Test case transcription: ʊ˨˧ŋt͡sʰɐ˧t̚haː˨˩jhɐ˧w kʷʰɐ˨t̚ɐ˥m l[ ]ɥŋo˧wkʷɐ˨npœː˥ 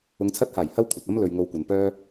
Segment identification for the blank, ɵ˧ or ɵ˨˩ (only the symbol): ɵ˧